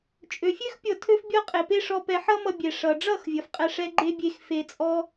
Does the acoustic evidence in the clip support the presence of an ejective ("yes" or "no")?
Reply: yes